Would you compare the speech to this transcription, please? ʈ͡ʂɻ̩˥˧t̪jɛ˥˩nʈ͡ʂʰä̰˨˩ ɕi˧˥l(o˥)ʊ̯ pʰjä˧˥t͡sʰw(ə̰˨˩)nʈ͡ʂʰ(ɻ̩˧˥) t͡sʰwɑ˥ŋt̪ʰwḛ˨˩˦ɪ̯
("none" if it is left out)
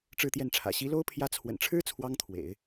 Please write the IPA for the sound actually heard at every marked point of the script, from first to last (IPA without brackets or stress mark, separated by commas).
o˥, ə̰˨˩, ɻ̩˥